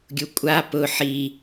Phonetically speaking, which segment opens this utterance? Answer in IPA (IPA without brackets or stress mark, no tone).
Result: ɡʲ